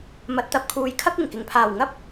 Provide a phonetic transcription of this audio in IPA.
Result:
m ɐ˨ t̚ t̪ ɐ˧ p̚ kʰ uː˨ j kʰ ɐ˥ k̚ ɪ˨˩ ŋ k ɪ˨˩ ŋ pʰ aː˨˩ w ŋ ɐ˥ p̚

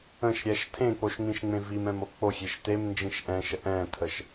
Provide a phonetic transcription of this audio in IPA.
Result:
ə̃ ʃ ɾʲ ɛ ʃ tʰ ẽ k͡p o ʃ ŋ͡m ĩ ʃ ŋ͡m ẽ v i m ɛ̃ m o k͡p o xʲ e ʃ t e m n d͡ʒ ĩ ʃ ʔ ɛ̃ ʃ ə ʔ ɛ̃ tʰ ə ʃ

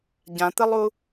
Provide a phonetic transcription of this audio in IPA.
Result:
ɟ ã t̪ ɪ lˠ u

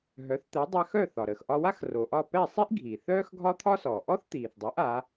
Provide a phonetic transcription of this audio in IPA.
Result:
ɦ œ˩˥ θ t̪ ɛ˩˥ dˤ a˧ x œ˥˩ θ ɒ˩ ɾ əː˩ x ʔ ɒ˧ w a˥ x r o˩ ʔ ɒ˥˩ p ɛ˥˩ sˤ i˥ ʔ ɡʱ iː˩ θ œː˥ x ɡʱ ɒ˥ t̪ʰ ɒ˥ s ɔ˩ ʔ ɔ˥ θ t̪ iː˩ θ dˤ ɛ˩˥ ʔ a˩˥

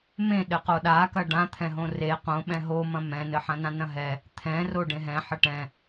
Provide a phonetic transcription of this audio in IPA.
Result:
m ẽ ɗ ɘ q o ɗ a k ɐ ɖ ã t̪ʰ ɛ̃ ɦ õ r e q õ ɓ ɛ̃ ɦ o m ɐ̃ m ɛ̃ n ɘ ħ ɐ̃ n ã n ɐ̃ ɦ ɛ | t̪ʰ ɛ̃ r o ɖ ẽ ɦ ɛ̃ ħ ɘ ʈ ɛ̃

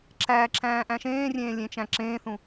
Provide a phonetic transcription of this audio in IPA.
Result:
ǁ æ ǁ æ̃ː ʔ æ̃ ʃ ẽː rʲ ẽː lʲ ẽ t͡ʃ æ̃ ǁ ẽː θ ũ

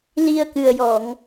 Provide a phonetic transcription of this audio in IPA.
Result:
l i˧ ə̯ k ɨ˨˩ ə̯ j ɔ˨˩˨ ŋ

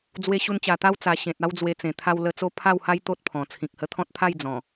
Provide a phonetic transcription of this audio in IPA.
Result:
d͡z w e˧ ɕ u˧ n t͡ɕ a˨˩ t̪ a˦ w t͡s a˨˩ ɕ ẽ˨ t̚ a˦ w d͡z w e˧ t͡s ẽ˨˩ t̪ʰ a˧ w l ə˧ t͡s o˦ pʰ a˥˧ w h a˦ j t̪ o˦ t̚ pʰ ɔ̃˨˩ t͡sʰ ĩ˨ k̚ h ə˧ t̪ʰ ɔ̃˦ t̚ t̪ʰ a˥˧ j d͡z ɔ̃˨˩

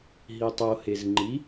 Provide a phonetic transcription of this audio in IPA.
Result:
ɦ i tˤ o h e z ŋ͡ǃ i

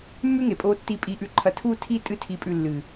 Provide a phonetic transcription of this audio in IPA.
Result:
mː ʉ˦ ŋ e˨ pʼ oː˧ tː i˧ pʼ i˦˨ ʔ ʉ˦ ǃʰ ɐ˧ tʰ uː˦ tʰ i˦ tʼ ɨ˦ tʰ i˧ pʼ ʉ˧ lː ɨ˨

